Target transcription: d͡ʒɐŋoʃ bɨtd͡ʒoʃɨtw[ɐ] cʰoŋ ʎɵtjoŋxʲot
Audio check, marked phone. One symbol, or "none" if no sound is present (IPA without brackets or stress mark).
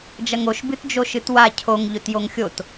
a